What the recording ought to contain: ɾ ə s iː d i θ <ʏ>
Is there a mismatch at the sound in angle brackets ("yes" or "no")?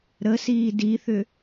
no